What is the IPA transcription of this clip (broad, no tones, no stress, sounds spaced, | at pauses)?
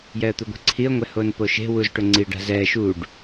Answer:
j ɛ ə̯ t̪ u ɡʷ e̤ ǀʰ i ə̯ ŋʷ ɛ h o n p o ʃ e̤ w u z ʈ ʊ ŋ͡ǀ i ɖ a̤ z ɛ ʃ u ɖ